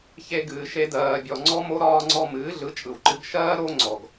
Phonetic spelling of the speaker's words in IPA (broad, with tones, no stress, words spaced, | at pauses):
çe˧ ɡɨː˨ ʃe˧ dɜː˨bʲɔ˨ ŋ͡ǀɔ˦mo˦ ɾɒː˧ŋ͡ǀɔ˧ mɨː˨˦ɮɯ˨˦t͡ʃʼɯ˨wǃɨ˧ɡ ʃɜː˦ ɾo˦ ŋ͡ǀɔ˨ɡ